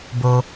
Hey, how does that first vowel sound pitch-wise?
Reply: low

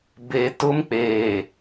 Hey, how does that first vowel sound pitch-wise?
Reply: low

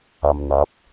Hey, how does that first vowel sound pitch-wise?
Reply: low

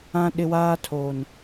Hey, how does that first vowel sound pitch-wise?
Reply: high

